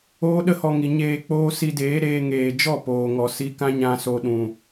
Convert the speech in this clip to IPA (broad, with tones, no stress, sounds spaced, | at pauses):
oː˦ ɗ ə˦ h ɔ˧ ŋ i˨ ɲ eː˧ k͡p oː˦ s i˧ d eː˨˦ ɾ eː˧ ŋ eː˨ d͡ʒ ɔ˦˨ p oː˨ ŋ ɔ˨ s i˧ k ã˦ ɲ ã˧ s o˧ ɗ ũ˨